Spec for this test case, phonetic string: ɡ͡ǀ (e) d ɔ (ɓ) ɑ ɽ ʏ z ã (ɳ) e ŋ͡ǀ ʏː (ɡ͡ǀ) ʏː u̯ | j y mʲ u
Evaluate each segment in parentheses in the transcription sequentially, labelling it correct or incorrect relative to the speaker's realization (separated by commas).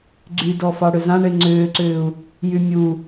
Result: incorrect, incorrect, correct, incorrect